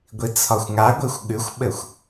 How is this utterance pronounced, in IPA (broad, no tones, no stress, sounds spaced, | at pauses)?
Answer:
ɡʷ i t͡sʰ ɒ xʷ ŋ a ɡʷ i xʷ ɠ ʉ xʷ ɓ ɘ xʷ